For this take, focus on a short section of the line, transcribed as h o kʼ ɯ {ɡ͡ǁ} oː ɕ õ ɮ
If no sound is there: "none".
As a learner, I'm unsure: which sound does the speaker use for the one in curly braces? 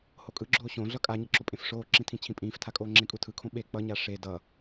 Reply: ɡ͡ǁ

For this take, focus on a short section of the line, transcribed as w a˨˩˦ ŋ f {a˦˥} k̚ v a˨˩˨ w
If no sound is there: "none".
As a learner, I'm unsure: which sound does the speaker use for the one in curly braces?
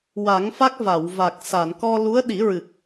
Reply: a˦˥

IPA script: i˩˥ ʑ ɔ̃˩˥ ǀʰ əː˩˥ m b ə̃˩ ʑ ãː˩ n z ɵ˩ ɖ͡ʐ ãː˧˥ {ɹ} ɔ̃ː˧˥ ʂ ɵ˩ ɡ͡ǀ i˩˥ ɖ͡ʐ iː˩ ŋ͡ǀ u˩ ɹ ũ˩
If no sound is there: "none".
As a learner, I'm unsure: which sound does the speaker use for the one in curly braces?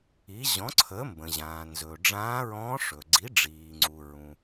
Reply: ɹ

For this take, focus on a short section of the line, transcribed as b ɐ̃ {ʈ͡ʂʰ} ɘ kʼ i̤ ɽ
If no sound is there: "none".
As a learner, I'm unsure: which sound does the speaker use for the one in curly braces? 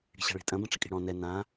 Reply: ʈ͡ʂ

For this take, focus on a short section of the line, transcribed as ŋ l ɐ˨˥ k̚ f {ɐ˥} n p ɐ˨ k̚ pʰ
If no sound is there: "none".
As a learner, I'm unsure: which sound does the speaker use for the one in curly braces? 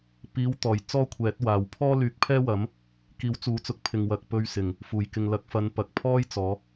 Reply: ɐ˨˧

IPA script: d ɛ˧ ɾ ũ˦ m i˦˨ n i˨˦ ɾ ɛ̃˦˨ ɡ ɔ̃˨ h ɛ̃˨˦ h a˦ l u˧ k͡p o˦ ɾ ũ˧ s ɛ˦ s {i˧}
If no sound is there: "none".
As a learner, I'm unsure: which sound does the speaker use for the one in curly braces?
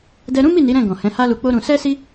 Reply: i˦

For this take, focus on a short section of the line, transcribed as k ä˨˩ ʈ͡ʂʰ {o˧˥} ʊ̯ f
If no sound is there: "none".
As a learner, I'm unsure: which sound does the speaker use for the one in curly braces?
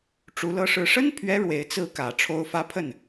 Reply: o˧˥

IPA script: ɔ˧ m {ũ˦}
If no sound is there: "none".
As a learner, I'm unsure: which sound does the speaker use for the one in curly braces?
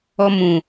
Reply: ũ˨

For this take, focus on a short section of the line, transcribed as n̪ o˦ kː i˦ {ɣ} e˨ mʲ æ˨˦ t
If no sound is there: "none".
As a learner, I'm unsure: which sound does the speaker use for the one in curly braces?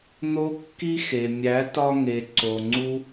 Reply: x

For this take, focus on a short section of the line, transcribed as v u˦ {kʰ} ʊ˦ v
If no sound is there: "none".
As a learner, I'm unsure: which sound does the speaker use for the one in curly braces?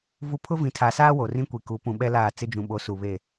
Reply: pʰ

